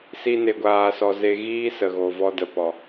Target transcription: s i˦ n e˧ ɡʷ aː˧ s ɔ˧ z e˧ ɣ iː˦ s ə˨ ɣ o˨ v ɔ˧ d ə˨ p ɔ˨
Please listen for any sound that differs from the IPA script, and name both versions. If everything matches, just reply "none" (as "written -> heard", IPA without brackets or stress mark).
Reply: none